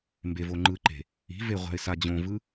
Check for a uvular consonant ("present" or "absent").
present